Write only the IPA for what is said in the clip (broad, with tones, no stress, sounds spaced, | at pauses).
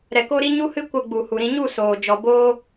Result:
ɾ ɛ˨ k o˧ ɾ i˧ ɲ u˦ h ɨ˦ kʷ ə˧ ɡ͡b u˨ h u˨ ɾ ĩ˧ ɲ u˦˨ s oː˨ d͡ʒ ɔ˨ b oː˧